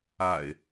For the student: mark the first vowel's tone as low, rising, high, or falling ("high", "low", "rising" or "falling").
low